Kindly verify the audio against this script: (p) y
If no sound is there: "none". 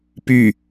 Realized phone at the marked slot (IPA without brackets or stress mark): p